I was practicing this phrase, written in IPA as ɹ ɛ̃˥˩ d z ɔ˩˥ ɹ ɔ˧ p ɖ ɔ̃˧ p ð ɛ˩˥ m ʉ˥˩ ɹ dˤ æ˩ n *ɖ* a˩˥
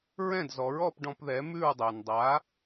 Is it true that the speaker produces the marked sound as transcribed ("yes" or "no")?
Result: no